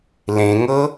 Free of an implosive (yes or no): yes